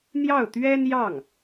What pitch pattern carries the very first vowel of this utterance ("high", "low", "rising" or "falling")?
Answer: falling